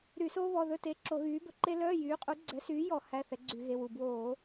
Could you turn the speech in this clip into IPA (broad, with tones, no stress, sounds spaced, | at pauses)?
ɾ y˧˩˧ s oː˥ β ɔ˩˧˩ ð ɵ˧˥˧ t e˩˧˩ ǁ o˧˩˧ ɣ yː˨˥ b ɵ˩ ǃ e˥ l œː˧˥˧ j yː˨˥ qʼ u˨˥ ɡ͡ǀ ɛ˨˥ s yː˨˥ j ɔ˧˩˧ h æ˧˥˧ θ ɛ˨˥ ɡ͡ǀ y˧˩˧ ɣ e˩˧˩ w u˩ b w oː˧˩˧